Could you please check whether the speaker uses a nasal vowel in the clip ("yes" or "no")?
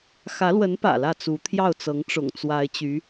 no